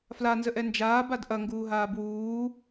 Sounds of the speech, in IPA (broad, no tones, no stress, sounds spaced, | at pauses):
f l a n z ə ʔ ɛ n d͡ʒ aː b a d ʔ ɐ ŋ ɡ uː ɦ aː b w uː